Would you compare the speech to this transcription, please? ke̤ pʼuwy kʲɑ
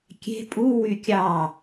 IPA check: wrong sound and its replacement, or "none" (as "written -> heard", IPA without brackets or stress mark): k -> kʲ